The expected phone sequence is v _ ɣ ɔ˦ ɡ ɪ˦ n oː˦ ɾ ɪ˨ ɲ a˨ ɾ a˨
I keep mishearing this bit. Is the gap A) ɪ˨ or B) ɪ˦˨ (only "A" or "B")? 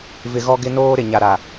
A